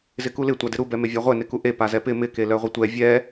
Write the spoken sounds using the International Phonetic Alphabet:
z ɪ k u l ɪ tʷ a d ɪ ɾ u b ɛ m e vʲ a ʁʷ ɛ n ɪ k u ʔ e p a z ɛ p ɪ m ɪ k e l œ ʁʷ ɪ tʷ ɛ vʲ ɛ

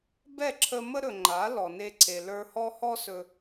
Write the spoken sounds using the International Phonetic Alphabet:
b ɛ˦˨ ǁʰ ə˧ m ə˦ ɾ ɵ˨ ŋ͡ǃ a˨˦ l ɔ˨ n e˧ ǀʰ e˨ l ə˞˧ h ɔ˦ h ɔ˦ s ɵ˧

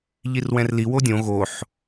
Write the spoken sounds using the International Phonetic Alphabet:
ʎ i r w ɛ̃ r l i w o dʲ õ ɣ o ħ

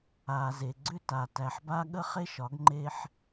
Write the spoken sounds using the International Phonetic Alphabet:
aː˨ z e˨ ɡ͡ǀ ʏ˦ t a˨ t æ˨ ħ b a˦ ɠ ə˦ χ e˦ ʃ ɒ˨˦ ɡ ŋ͡ǃ e˦ ħ

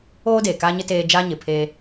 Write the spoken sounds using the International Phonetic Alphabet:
oː˦ d eː˨ k aː˦ ɲ ɪ˦ t eː˦ d͡ʒ a˦ ɲ ɪ˨ pʰ eː˦

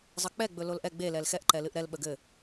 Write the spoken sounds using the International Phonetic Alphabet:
zˤ ə k͡p ɛ ɡ͡b ɵ l o l ʔ ɛ ɡ͡b e l ɛ l x ɛ ʔ ǃ ɛ l ɨ ʔ ɾ ɛ l ɓ ə ɡ ɘ

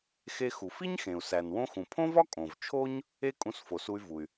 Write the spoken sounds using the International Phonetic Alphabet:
x e˧ x u˩ f i˥ ɲ x ẽ˩ u̯ s æ˩ n w õ˧ x ũ˩ pʰ õ˥ v ɒ˥ kʼ õ˩ v t͡ʃʰ o˥ ɲ | e˥ kʼ ũ˧ s f o˩ s u˧ y̯ v u˩ y̯

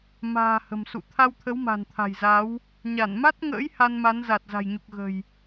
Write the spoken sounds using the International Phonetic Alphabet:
m a̤ː˨˩ h ə̤˨˩ m s ṵ˧˨ t̪ʰ a˧ w t̪ʰ ə˨˦ w m a̤˨˩ n t̪ʰ a̤˨˩ j z a˨˦ w | ɲ a˧˩ n m a˦˥ t̚ ŋ ə̰ː˧˥ j h a˧ n m a˨˦ n z a˨˩ t̚ z a̤˨˩ j ɲ u˨˩ k̚ ɣ ə̤˨˩ j

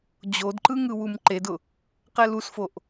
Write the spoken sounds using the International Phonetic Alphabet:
d͡ʑ o d ǃ ɯ ŋ ɯ w u m ǃ e d ʊ | q ɛ l u s f o ʔ

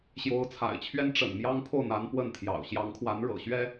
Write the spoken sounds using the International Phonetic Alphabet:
ɕ j o˧˥ ʊ̯ t͡sʰ a̰˨˩ ɪ̯ t͡ɕʰ ɥ ɛ˥ n ʈ͡ʂ ə̰˨˩ n m j ɑ˥ ŋ pʰ o˥˩ ʊ̯ n̪ a˧˥ n p w ə˥˩ n t̪ʰ j ɑ̰˨˩ ʊ̯ ɕ j ɑ˧˥ ŋ kʰ w a˧˥ n ɻ ɤ̰˨˩ ɕ ɥ ɛ˥

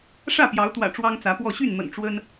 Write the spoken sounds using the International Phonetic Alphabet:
ʂ ä˥˨ p j ɑ˨˦ ʊ̯ t̪ w ä̰˨˩ ʈ͡ʂ w ɑ˦ ŋ t͡s ä˨˦ p w ɔ˥˨ ɕ y˥˨ n m ə̰˨˩ n ʈ͡ʂ w ə˦ n

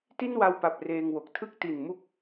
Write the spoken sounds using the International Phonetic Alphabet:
t i˥˩ n w a˧ w p a˨˩ p̚ r eː˧ ŋ w o˨˩ k̚ tʰ ɯ˦˥ k̚ t i˨˩ n m u˥˩ k̚

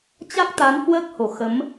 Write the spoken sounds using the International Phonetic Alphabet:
t͡ɕ a˦˥ k̚ t̪ a˨˦ n h w əː˦˥ k̚ h o˧˩ x ə˨˦ m

